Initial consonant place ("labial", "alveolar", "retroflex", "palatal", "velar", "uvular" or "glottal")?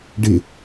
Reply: retroflex